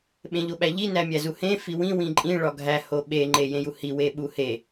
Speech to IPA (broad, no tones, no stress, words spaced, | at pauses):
ɓẽʎoɓæʎi næmʲæzuhẽ fiwĩ wĩǃʼĩ ɭɒɡʱæ hoɓe ŋ͡ǃejẽjuhi weɓuhe